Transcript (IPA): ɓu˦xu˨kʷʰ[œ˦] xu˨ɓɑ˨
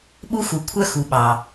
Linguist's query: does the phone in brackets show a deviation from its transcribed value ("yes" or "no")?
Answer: no